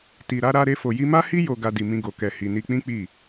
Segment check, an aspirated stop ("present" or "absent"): absent